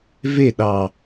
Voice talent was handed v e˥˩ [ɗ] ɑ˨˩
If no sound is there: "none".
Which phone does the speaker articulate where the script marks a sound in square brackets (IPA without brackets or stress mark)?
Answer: ɗ